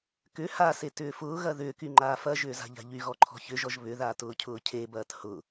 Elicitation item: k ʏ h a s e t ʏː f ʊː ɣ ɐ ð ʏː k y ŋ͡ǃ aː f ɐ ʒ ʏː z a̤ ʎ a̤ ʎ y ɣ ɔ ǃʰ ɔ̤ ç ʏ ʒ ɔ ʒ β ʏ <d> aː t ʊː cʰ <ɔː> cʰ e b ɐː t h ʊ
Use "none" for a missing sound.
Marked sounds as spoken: ð, ʊː

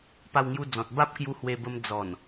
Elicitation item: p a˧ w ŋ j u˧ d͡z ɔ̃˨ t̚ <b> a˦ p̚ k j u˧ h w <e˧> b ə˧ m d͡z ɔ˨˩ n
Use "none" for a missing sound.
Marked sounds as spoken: b, e˧

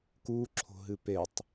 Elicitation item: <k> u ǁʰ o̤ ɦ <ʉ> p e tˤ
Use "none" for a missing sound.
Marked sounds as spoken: k, ɨ

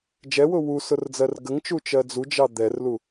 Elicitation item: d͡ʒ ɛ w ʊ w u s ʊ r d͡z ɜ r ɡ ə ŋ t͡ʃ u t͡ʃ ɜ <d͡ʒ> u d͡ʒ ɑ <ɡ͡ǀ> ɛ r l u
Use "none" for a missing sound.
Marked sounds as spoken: d͡z, d̪

